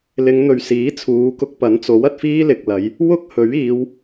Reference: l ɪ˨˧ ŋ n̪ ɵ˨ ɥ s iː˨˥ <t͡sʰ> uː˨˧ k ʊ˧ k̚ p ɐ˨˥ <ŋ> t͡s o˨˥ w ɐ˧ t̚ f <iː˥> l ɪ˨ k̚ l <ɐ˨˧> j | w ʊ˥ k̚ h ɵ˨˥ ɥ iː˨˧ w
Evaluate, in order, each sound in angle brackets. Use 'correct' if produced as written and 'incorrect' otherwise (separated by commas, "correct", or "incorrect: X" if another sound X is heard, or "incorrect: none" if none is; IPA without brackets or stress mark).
correct, incorrect: n, correct, correct